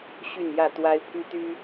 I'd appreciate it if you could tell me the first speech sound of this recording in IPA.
ɕ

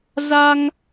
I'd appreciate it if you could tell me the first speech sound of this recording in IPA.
z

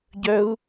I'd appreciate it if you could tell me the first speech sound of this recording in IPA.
ɟ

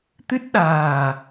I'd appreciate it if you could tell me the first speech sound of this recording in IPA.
t̪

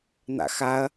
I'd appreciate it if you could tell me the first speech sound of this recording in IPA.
n̪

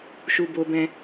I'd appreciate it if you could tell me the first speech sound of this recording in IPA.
ʃ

